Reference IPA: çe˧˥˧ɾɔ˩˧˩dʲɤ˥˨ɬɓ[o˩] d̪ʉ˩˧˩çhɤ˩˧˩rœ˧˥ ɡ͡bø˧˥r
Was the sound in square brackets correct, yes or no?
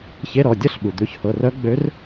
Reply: no